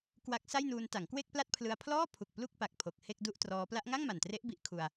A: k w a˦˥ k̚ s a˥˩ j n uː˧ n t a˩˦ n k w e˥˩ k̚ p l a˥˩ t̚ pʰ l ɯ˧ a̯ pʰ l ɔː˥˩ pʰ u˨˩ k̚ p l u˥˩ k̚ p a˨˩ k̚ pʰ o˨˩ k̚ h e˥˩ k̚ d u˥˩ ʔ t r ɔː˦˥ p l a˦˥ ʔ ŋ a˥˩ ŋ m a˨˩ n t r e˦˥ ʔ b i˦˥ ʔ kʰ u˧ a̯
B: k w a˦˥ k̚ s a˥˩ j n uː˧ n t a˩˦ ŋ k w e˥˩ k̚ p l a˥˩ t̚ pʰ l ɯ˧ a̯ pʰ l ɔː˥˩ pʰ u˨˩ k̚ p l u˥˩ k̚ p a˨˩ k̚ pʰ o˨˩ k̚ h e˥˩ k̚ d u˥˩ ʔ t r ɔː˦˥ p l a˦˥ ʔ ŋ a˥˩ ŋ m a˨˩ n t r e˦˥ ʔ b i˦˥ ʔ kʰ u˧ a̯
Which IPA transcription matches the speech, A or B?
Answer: B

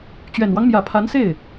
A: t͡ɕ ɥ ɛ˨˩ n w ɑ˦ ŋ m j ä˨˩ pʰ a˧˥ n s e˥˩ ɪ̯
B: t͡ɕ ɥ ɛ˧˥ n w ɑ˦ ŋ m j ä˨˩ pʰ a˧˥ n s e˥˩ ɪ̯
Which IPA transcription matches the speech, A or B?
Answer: A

